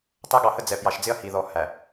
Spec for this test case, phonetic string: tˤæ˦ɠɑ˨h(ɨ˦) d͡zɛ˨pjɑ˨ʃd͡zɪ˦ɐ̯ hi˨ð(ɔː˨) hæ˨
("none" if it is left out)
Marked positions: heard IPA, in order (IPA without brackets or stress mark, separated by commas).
ə˦, ɔ˨